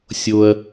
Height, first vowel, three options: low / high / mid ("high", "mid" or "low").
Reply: mid